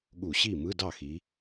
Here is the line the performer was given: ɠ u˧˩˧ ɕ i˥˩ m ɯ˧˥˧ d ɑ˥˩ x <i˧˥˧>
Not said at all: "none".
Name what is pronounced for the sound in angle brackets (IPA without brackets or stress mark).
i˩˧